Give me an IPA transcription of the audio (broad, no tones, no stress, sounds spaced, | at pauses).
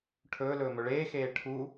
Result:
ʈʰ ɵː l ɵː m ɵ ɭ eː x eː ʈʰ u